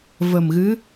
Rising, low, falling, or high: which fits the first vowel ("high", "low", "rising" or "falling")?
low